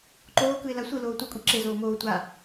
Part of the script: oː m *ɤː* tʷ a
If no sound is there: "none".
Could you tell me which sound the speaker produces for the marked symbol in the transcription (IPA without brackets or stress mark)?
oː